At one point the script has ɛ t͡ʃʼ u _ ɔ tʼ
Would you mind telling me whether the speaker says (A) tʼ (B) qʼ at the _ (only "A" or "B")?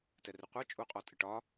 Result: B